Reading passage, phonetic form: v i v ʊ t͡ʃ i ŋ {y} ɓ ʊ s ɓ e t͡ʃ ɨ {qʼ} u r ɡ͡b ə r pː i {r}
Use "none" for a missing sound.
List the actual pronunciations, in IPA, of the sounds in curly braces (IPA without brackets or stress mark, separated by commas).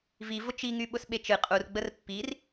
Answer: y, qʼ, r